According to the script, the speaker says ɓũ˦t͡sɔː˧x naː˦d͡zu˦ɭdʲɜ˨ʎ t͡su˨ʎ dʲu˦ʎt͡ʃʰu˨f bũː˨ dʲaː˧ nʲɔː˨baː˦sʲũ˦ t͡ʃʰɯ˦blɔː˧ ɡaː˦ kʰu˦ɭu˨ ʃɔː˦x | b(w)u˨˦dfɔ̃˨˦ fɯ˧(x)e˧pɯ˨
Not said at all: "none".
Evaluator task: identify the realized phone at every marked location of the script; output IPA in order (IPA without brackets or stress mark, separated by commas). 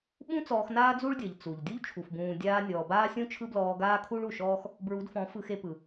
ɹ, x